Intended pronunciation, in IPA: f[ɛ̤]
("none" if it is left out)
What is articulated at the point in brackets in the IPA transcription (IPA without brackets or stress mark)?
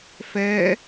ɛ